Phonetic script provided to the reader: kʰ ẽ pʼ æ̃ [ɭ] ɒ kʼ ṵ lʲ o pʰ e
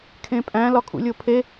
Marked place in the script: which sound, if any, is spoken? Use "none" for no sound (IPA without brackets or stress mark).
l